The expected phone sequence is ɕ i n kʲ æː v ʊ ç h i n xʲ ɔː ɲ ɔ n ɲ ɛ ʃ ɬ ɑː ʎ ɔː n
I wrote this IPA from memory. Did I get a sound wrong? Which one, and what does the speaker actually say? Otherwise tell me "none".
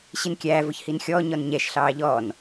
none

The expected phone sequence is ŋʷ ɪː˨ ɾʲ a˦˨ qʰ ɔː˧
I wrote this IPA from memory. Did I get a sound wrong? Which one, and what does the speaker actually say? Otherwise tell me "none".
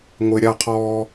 none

